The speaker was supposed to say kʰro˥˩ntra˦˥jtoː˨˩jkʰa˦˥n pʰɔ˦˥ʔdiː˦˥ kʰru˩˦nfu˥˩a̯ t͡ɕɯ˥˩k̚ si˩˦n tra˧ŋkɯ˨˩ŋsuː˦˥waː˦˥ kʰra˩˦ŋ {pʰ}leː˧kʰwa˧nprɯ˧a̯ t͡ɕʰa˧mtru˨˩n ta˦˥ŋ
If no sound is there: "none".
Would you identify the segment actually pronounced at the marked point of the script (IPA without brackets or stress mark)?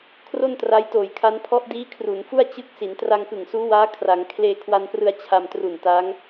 kʰ